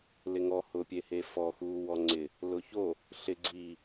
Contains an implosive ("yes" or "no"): no